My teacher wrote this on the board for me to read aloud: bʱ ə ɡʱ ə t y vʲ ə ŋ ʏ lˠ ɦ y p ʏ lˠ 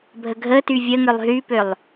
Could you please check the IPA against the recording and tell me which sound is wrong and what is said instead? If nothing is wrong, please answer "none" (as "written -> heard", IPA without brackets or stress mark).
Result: none